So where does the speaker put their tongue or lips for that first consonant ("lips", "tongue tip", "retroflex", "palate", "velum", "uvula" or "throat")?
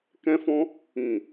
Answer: velum